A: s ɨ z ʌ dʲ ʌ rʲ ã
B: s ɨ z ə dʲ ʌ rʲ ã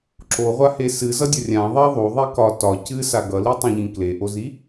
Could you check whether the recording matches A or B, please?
A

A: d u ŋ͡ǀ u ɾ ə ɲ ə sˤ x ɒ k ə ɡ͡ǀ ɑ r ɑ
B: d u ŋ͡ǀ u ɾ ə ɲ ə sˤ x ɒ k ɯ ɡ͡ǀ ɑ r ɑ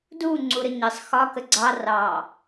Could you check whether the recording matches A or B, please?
A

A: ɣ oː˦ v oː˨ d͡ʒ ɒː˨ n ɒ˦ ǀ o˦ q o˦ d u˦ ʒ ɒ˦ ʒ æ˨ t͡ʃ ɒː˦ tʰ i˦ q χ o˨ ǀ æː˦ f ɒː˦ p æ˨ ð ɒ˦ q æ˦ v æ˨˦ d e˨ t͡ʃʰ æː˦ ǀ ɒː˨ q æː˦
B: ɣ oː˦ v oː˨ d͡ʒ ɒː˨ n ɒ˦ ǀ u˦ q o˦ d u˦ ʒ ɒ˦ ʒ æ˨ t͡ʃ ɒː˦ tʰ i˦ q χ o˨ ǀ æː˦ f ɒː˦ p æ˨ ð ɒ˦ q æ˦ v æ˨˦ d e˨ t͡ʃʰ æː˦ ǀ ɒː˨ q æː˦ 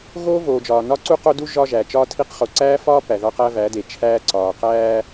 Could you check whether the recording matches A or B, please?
B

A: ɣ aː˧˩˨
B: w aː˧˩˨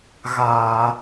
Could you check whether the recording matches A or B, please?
A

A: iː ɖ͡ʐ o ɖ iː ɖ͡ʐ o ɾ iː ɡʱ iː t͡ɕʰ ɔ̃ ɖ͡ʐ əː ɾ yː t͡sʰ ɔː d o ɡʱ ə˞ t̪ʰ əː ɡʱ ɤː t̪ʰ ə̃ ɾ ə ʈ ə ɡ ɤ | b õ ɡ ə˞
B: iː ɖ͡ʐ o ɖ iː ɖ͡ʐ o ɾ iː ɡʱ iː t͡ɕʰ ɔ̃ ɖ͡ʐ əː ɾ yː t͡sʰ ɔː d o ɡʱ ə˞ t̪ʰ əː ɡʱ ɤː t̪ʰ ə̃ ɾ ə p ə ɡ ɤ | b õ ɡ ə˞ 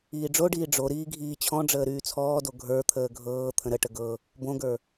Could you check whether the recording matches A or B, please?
A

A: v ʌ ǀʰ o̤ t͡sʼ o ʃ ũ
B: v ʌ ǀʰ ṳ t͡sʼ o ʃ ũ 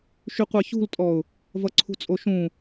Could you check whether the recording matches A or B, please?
B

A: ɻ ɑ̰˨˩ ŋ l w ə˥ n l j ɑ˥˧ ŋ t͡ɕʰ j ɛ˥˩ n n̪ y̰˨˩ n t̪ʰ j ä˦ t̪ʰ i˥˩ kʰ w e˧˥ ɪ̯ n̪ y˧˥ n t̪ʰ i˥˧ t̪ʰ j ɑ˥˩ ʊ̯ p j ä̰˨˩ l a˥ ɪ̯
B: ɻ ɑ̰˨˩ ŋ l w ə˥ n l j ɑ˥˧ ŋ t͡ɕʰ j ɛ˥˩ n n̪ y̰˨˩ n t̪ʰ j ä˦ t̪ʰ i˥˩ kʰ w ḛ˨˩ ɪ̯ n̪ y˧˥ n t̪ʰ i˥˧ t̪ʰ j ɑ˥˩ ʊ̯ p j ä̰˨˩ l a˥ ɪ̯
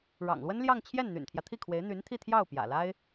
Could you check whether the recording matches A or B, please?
A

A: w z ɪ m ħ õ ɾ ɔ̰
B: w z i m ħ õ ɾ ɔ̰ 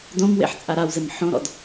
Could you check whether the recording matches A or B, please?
A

